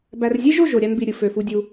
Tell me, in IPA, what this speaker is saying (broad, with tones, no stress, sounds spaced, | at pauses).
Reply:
b æ˨ r zʲ e˦ ʒ o˦˨ ʒ o˨ ɾʲ ɑ˧ n b i˨ ɾʲ ɯ˨ f ø˨ f u˧ dʲ u˧